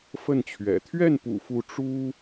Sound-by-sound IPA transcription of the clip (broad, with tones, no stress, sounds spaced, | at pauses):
f ə˥˩ n t͡ɕʰ ɥ ɛ̰˨˩ t̪ʰ ɥ ɛ˥˩ n p ṵ˨˩ f u˧˥ ʈ͡ʂ u˥